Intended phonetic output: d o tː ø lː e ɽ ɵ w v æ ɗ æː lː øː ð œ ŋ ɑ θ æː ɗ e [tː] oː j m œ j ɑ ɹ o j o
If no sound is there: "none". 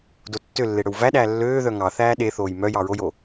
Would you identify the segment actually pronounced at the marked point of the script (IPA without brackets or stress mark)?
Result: θ